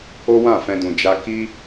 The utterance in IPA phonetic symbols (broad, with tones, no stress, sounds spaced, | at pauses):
o˦ w ã˦˨ f ɛ̃˧ d ũ˨ d͡ʒ a˧ k i˦